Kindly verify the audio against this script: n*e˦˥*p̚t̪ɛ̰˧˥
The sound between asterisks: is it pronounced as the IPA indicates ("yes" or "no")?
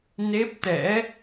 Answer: yes